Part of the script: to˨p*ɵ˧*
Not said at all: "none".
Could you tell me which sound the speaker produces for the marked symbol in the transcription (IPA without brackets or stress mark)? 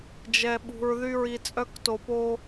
o˧